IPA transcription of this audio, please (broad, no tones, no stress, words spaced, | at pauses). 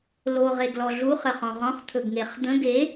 lo ʁeɡlɔɮu χəχɔ̃ʁɔ̃χ t̪ʰɵɡŋeχd̪ə̃ ɡe